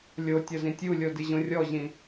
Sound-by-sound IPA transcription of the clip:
lʲ o tʲ ʌ z ĩ tʲ u lʲ o d i ʑ õ rʲ ɔ ʑ ĩ

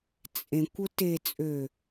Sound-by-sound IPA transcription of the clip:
t͡sʼ ẽ kʷ ʊ t e t͡sʼ ø

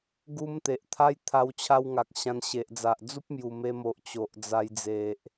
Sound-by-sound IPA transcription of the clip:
ɡ u˦ m t̪ e˨ ʔ t̪ʰ a˦ j t̪ʰ a˧ w t͡ɕʰ a˦ w ŋ a˨ k̚ ɕ ã˧ n ɕ e˨ ʔ d͡z a˨ ʔ d͡z u˦ p̚ m j u˨˩ m e˧ m o˨ ʔ t͡ɕ o˨ ʔ d͡z a˧ j d͡z e˨ ʔ

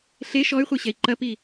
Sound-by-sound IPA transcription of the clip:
ɬ e ʃ ɔ y̯ χʷ e ɕ ɛ i̯ ǃ ɐ p i

